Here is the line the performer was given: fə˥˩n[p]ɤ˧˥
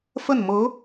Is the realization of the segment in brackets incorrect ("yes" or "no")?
yes